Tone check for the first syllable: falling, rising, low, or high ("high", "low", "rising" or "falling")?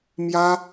high